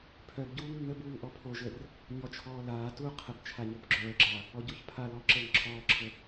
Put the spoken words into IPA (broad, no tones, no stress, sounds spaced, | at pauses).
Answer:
pʰ œ b ɟ uː ŋ nː ə b uː ŋ ʔ ɔ pʰ o ʒ ə r | ɲ ɔ t͡ʃʰ ɔː l aː t uː qʰ ə b t͡ʃʰ a ɲ o b ɡ͡ǁ œː ɡ͡ǁ a | ɔ ɟ o ç pʰ a l ɔ ǁ əː ŋ ǁʰ ɔː ǁʰ ə